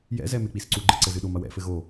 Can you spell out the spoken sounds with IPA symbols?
jɛ̰zɛ mek͡pisǀu ɡ͡ǃɘǀɘzɨɗom ɐwɛ̰fɘ ɣo

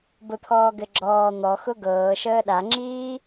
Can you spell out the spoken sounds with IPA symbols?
bʊt̪ʰɔːɡɘ ɡ͡ǁɔː n̪ɔxʊ ɡɤːʃəː ɗaŋ͡ǁiː

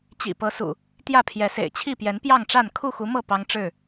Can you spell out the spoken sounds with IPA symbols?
t͡ɕḭ˨˩pɤ˨˦sṵ˨˩ | t̪jä˥˨pʰjɛ˨˦sḛ˨˩ɪ̯ t͡ɕʰi˥˨pjɛ˨˦n pjɑ˥˨ŋʈ͡ʂa˥˨n kʰu˥˨xu˨˦mɤ˥˨ pɑ˦ŋʈ͡ʂɻ̩˥˨

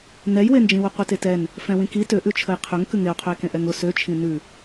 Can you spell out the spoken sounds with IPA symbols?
nɛjwend͡ʒĩwʊ qʷetetɛn | fɛ̃wĩki tøʔʉ t͡ʃʰəjqʰøŋ kʉŋeo̯qʰøe̯kẽ ʔɛŋʊ søt͡ʃʰĩ nʉ

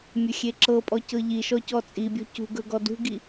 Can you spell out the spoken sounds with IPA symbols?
mʲɵxʲeǁɤpʼɔ cɤʎiʃɔ cɔt͡sʼibʲɔ̤ cṳɡɵ ɡɔdṳɡi

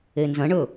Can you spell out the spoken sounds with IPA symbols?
enzɐ̃ɳɵ

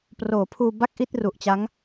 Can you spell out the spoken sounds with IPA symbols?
proː˩˦pʰuː˧ ba˥˩k̚ʔi˥˩t̚ru˨˩ʔt͡ɕa˦˥ŋ

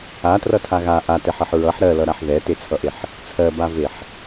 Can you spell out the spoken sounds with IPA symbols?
atrʌtʰa ɣa ʔatɛħɜħ ɹʌħ ɾɜlʌɾaħ ðɛtet͡sʰʌʔeħ | t͡sʰɜbaveħ

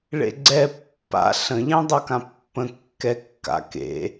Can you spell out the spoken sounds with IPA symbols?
ɭḛɡ͡ǀɛ pːa̰ ɬə̃ʎẽ dˤʌkãpːə̃ kːɛkːa̰ kḛ

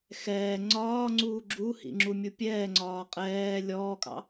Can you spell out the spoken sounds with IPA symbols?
xɛː ŋ͡ǀɒːŋ͡ǀuː ɡ͡ǁuhḭŋ͡ǁumʲu pʲɛːŋ͡ǀɒː qʼɛː lʲɔːkʼɑ̰

